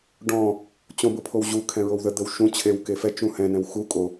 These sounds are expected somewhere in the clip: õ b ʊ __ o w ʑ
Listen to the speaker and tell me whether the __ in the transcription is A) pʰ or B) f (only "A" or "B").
A